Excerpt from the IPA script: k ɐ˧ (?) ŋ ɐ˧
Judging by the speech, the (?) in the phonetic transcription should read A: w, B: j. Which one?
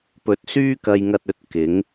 B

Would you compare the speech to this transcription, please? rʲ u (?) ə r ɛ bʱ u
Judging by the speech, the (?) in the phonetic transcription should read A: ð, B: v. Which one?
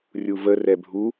B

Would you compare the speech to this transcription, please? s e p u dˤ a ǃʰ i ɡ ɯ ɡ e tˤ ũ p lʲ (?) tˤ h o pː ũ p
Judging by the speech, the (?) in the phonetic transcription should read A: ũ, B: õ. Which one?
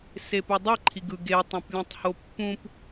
A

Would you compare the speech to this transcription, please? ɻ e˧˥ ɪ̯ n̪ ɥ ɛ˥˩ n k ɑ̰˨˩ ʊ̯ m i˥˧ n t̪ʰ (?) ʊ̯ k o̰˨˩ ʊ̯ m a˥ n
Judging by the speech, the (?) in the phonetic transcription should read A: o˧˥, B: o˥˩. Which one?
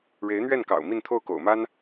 B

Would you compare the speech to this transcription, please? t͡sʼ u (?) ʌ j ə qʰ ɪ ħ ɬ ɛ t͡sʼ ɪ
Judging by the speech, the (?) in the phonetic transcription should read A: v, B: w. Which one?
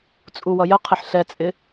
B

